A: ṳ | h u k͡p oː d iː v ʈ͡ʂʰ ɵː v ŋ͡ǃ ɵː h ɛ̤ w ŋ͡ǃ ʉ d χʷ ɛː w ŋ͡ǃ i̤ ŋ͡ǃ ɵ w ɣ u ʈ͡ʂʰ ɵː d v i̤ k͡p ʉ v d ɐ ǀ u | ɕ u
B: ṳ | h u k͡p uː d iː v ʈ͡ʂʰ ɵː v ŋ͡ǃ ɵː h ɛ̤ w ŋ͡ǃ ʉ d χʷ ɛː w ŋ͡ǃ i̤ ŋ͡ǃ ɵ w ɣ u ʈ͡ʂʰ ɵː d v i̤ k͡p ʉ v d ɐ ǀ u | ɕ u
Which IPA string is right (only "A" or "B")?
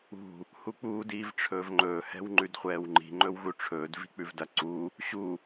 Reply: B